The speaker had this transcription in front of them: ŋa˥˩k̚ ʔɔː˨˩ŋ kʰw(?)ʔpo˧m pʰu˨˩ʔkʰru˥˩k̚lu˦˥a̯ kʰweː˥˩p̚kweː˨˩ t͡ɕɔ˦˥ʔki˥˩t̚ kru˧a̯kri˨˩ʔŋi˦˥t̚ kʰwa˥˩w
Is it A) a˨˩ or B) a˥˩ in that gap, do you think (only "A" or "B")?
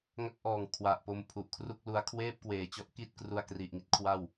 A